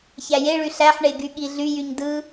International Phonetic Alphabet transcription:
ç æ j e ɭ y ɬ æ ħ ɳ e ɡ y ɠ i ɮ y j y ɲ d ɯ

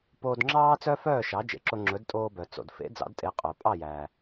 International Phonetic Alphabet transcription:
p oː˧ d ŋ͡ǁ ɑː˥ t͡s œ˥ f œː˥˩ ʃ ɑ˩˥ d͡ʒ ḛ˩ ǁ o˧ ŋ͡ǁ ɵ˩˥ d tʼ oː˧ b œ˩ t͡s o̰˩ d f ḛ˩˥ d͡z ɑ̰˩˥ d tʼ e˩˥ qʼ œ˩ pʼ ɑ˥˩ j æː˩

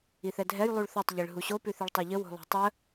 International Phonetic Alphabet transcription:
i θ ɛ dʱ ɛ j lˠ u ɭ θ ɛ tˤ ʎ i ɭ ɦ u ɕ o p ʉ θ i ɭ tˤ ɛ ʎ ə w o̤ lˠ o̤ tˤ ə

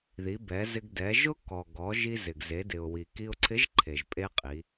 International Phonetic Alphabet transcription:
ð i˩˧ b ɛ˩˧ z ɪ˧ ɡ d ɛ˩˧ ʒ ʊ˥ k ɔ˩ ɡ ɔ˩˧ ʒ i˧ z ɪ˩ ɡ z e˩˧ d ɪ˩ ʊ̯ w i˩ k i˧ ʊ̯ ǀʰ ɪ˧˥ ʒ ǃʰ e˩ ʒ pʼ e˥ qʼ i˩˧

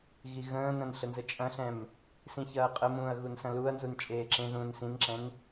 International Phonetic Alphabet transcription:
ɣ i ɣ ə̃ː n ɐ̃ n ɬ ə n z ə t͡ʃʼ ɐ̃ ɬ ɛ̃ m | s ĩ ç ɐː qʼ ə m ũː ɐ̯ ɣ u n s ɐ̃ l u ɐ̯ n z u n t͡ʃʼ eː ǁ ẽ ð ũː n s ĩ n ǁ ɛ̃ n

